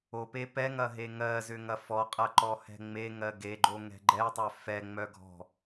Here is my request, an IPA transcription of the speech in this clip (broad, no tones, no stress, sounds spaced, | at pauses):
o p e p ɛ ŋ ɐ ɦ e ŋ ɜ z ʏ ŋ ɐ f ɔ qʼ ɐ ǃ ɔ h ɛ̤ ŋ͡m e ŋ ɜ ɡ e ɡ͡ǃ o ŋ ɛ̤ ɡ͡ǃ ɛ tˤ œ f ɛ ŋ͡m œ ɡʱ ɔ̤